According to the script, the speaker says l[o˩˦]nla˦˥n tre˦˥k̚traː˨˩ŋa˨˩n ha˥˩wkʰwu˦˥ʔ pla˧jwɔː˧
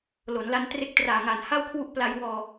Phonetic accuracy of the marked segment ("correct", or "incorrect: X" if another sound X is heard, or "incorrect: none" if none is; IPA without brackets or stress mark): correct